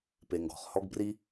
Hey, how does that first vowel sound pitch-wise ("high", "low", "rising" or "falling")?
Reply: low